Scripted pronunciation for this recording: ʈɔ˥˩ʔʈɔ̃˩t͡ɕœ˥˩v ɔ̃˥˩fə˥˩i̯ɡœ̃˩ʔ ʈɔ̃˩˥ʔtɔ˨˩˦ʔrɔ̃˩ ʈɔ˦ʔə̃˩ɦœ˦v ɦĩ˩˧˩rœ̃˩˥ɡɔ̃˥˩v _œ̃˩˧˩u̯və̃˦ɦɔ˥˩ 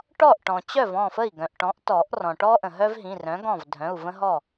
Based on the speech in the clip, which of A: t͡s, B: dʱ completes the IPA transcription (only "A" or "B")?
B